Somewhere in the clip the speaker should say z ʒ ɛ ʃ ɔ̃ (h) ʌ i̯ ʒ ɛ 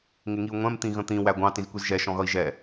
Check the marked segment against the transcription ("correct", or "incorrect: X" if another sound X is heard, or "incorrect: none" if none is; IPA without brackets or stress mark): incorrect: ɣ